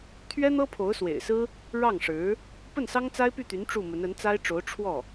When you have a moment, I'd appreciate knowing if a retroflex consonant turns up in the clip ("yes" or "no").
yes